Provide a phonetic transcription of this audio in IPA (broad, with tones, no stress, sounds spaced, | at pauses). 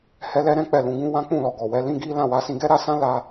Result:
h ɛ˦ l ɛ˦ ɾ ɛ̃˦ k͡p ɛ˦˨ l ũ˨˦ ɡ ũ˦ w ã˦ k͡p ũ˦˨ l ɔ˨ ɡ ɔ˨ w ɛ˨˦ l ĩ˦ ɡ i˦ l ã˦˨ w a˨˦ s ĩ˧ ɡ ɛ˦ ɾ a˧ s ã˦ l a˦